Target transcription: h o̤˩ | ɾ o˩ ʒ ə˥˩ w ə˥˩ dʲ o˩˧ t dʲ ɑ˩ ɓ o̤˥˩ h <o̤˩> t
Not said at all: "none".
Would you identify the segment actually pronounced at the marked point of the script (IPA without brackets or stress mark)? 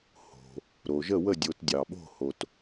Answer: o˩